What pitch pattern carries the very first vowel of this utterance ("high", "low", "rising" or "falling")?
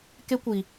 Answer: high